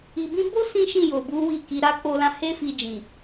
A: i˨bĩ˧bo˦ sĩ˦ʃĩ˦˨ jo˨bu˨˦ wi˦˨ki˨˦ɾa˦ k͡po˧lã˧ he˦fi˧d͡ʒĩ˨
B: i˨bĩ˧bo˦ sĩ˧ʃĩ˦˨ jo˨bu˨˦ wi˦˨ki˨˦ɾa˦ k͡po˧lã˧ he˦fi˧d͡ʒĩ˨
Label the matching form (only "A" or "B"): A